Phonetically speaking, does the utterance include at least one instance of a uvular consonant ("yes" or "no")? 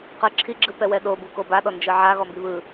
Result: yes